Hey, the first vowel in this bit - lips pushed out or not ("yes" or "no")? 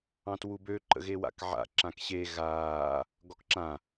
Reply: no